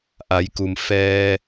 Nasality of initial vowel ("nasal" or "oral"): oral